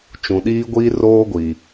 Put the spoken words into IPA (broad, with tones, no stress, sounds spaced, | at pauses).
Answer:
t͡ʃ ũ˨ ɗ iː˦ ɡʷ iː˦ r oː˦ ɡʷ i˨